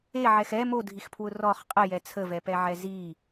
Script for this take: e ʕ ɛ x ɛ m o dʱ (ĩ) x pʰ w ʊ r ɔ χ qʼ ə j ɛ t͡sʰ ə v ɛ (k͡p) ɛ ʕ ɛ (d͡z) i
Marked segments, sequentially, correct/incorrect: incorrect: i, incorrect: p, incorrect: z

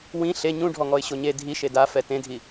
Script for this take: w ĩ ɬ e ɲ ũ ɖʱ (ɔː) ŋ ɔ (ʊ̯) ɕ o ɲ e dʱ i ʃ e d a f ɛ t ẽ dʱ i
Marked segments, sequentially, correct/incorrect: incorrect: ɔ, incorrect: ɪ̯

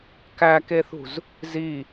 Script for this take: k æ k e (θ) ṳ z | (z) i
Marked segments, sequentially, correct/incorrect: correct, correct

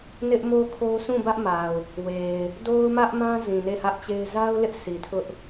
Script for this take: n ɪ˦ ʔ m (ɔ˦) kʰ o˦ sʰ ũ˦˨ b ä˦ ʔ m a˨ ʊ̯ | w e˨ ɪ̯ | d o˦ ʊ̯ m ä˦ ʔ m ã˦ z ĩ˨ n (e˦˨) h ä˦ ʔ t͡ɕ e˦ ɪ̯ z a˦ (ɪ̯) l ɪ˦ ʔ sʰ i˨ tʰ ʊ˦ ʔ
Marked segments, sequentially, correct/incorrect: incorrect: o˦, correct, incorrect: ʊ̯

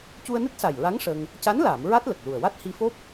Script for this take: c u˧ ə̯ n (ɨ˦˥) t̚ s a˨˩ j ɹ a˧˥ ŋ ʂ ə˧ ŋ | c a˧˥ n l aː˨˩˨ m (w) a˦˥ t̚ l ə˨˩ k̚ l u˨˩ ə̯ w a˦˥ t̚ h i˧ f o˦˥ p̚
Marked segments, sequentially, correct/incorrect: correct, incorrect: ɹ

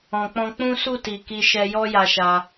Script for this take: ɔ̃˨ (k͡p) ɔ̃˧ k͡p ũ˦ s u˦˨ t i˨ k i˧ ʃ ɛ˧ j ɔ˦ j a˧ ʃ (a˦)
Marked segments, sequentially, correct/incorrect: correct, incorrect: a˧

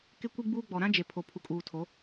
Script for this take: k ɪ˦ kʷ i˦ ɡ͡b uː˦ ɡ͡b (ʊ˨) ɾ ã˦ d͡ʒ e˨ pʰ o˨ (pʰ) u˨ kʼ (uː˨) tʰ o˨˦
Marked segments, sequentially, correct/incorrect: incorrect: ɔ˨, correct, correct

